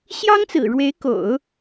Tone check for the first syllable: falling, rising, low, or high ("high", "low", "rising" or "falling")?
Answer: high